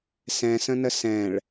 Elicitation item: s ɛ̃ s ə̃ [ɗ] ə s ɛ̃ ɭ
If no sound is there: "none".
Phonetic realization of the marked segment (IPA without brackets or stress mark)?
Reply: n